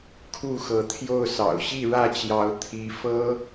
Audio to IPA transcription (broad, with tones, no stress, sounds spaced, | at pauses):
kʰ u˥˨ x ɤ˨˦ t̪ʰ j o˥˨ ʊ̯ s ɑ̰˨˩ ʊ̯ ɕ i˥˨ ɻ ä˥˨ t͡ɕ j ɑ˨˦ ʊ̯ t̪ʰ i˨˦ f ɤ˦